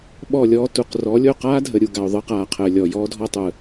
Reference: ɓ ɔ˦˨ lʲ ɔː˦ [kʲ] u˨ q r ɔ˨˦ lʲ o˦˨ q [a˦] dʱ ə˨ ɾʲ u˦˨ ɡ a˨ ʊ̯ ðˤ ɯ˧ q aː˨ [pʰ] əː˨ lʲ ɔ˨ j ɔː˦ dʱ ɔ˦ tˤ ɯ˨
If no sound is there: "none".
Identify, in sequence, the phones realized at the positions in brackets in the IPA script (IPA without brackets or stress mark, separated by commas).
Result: t, aː˦, qʰ